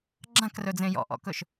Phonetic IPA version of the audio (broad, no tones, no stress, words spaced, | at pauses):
ɡ͡ǁãkrɵd͡zẽ jɔ̰ʔɔ̰kɵʃ